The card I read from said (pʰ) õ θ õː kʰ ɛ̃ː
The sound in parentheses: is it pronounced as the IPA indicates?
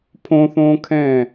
yes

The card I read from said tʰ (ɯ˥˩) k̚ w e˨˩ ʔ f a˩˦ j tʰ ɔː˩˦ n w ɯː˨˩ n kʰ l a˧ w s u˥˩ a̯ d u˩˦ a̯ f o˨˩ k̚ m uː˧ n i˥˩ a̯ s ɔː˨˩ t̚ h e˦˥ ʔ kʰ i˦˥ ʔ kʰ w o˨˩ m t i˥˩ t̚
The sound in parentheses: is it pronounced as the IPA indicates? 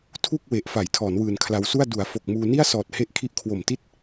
no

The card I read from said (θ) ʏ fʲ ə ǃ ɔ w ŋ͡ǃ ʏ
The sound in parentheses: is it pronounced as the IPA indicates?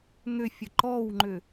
no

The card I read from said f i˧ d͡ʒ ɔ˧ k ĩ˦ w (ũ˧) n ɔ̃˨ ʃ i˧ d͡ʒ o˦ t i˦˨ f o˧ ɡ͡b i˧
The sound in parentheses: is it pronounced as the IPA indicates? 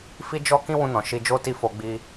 yes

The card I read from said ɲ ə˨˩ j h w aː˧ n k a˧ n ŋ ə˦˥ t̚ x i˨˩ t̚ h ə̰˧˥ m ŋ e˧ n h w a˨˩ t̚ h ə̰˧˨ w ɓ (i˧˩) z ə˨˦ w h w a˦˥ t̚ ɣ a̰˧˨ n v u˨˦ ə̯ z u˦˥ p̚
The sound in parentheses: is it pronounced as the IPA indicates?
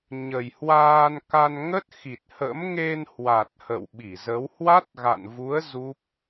yes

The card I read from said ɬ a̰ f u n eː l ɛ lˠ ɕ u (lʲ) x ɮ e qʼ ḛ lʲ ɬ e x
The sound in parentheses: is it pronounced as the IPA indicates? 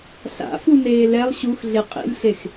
no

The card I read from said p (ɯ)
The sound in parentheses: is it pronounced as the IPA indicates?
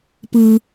yes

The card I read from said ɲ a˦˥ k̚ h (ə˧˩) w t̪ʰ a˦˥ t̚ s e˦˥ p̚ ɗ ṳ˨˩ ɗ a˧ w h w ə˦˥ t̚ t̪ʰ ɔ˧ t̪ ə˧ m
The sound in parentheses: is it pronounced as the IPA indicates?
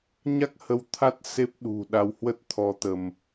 no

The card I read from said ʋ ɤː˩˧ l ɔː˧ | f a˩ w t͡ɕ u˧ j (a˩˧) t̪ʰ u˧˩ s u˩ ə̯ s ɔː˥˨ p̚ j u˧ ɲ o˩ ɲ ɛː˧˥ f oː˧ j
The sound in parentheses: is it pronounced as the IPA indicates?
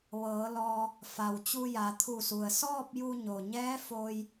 yes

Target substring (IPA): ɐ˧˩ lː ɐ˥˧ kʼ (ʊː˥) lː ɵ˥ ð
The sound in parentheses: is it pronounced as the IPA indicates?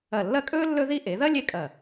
no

